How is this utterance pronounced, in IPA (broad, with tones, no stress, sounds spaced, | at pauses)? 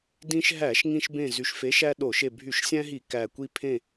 d ĩ˦ ʃ ɦ æ˧˩˧ ʃ ŋ ĩ˦ ʃ b ẽ˦˨ z y˨˩ ʃ f e˨˥ ʃ æ˦ ɗ o˧˩˧ ʃ e˦˨ bʱ y˧˩˧ ʃ sʲ æ̃˦ ɦ i˧˩˧ k æ˨˩ kʷ i˦˨ pʰ ẽ˦˨